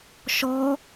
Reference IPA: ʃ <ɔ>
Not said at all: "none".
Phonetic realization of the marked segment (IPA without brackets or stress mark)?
ɔ